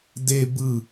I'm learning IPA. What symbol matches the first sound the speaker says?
d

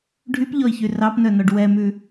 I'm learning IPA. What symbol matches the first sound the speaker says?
ɖʱ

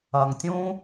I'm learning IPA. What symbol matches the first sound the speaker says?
ɐ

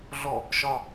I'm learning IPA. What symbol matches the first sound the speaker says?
ɮ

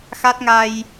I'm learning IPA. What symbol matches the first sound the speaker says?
x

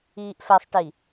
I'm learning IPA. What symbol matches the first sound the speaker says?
iː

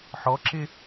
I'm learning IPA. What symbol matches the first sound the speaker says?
ħ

